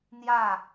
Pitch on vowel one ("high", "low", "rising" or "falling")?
falling